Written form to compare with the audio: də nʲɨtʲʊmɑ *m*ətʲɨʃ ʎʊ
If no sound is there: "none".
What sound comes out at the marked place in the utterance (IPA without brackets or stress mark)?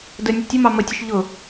m